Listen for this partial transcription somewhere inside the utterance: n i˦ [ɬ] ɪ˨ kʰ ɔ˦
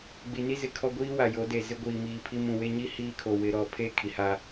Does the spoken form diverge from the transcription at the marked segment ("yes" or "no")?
yes